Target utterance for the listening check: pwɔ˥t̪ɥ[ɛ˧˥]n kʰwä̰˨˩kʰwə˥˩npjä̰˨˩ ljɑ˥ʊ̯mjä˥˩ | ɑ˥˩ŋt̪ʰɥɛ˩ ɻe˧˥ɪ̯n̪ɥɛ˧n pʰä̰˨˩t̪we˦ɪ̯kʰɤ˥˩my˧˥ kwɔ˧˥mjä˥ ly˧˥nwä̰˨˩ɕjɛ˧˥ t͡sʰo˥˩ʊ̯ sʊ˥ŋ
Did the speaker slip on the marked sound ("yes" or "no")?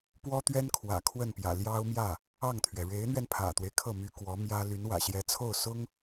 yes